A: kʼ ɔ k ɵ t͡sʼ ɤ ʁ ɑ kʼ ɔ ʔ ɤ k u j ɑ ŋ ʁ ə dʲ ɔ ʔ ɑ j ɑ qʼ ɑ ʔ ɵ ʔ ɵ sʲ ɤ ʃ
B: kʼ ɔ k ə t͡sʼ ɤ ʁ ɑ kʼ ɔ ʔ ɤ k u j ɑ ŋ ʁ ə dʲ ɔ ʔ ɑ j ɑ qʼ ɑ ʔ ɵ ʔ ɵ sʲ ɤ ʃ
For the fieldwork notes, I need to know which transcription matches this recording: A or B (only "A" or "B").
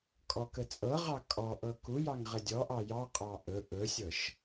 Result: B